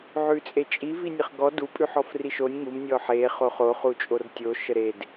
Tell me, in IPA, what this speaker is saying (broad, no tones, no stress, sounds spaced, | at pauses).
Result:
ʕ ʉ t͡sʼ e t͡ʃʼ i v i nʲ ə χ ɡ ɔ d u pʼ ʉ ħ ɔ f r i ʃ o nʲ ŋ u m nʲ ɔ ħ e χ o χ o χ u t͡ʃʼ o r tʲ o ʃ ə ɾ e d